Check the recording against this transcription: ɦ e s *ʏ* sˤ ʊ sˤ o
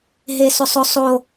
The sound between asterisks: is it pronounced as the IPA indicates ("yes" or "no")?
yes